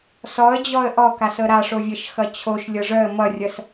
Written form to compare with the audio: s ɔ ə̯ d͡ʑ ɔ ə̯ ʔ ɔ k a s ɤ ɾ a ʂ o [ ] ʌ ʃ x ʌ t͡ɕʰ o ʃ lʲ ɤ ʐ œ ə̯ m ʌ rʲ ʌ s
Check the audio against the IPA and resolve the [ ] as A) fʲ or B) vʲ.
B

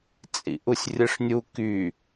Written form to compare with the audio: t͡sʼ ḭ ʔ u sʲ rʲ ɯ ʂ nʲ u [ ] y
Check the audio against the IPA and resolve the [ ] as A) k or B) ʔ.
A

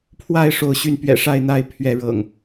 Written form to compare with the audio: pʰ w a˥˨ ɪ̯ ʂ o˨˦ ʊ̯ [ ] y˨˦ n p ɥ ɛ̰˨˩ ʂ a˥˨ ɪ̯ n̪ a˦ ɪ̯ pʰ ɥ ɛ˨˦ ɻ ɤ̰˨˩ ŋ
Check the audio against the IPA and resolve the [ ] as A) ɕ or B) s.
A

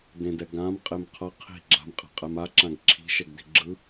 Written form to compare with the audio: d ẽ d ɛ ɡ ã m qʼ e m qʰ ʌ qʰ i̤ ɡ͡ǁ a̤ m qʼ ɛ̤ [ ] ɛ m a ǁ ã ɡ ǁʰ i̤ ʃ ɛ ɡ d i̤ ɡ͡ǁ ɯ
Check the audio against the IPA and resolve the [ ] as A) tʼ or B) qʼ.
B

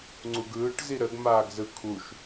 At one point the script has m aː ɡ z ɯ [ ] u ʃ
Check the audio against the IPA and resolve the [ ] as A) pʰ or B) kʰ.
B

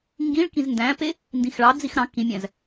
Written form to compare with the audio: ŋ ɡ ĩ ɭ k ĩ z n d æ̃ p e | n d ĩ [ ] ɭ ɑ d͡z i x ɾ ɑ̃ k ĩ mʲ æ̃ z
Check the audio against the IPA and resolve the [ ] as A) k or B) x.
B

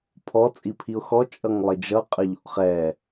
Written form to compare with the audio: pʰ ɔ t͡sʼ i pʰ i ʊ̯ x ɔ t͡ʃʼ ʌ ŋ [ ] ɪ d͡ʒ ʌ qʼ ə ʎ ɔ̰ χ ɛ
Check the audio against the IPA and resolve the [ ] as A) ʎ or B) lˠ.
B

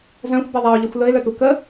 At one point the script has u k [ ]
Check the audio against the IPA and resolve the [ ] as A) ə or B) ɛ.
A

